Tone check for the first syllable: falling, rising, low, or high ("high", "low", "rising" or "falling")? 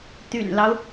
low